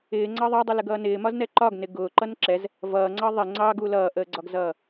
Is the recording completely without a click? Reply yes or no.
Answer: no